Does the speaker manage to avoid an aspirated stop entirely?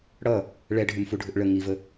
yes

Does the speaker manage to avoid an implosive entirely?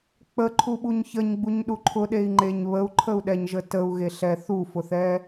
no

